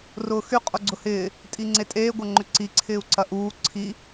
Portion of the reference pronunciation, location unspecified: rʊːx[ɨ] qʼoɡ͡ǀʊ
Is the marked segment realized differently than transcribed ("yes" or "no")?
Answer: yes